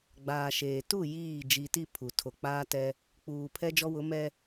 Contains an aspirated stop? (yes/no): yes